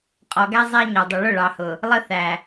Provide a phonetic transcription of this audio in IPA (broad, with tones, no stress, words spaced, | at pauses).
qʼɔ˨ɡæ˦ zˤæ˦ɲɒ˨dˤə˨ ɭʊ˦˨ɭɑ˨hʊ˨ | lˠə˦ θæ˨